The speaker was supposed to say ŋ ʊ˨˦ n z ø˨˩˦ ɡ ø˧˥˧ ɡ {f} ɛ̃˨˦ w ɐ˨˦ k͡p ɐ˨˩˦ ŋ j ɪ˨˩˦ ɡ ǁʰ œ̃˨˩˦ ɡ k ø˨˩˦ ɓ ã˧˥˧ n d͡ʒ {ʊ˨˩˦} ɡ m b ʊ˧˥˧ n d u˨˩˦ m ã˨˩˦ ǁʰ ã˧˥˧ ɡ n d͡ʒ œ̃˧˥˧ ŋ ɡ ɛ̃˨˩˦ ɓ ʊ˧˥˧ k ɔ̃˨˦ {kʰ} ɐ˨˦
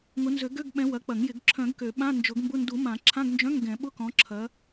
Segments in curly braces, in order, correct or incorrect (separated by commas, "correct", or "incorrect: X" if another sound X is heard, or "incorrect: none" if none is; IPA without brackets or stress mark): incorrect: ɓ, correct, incorrect: ǁʰ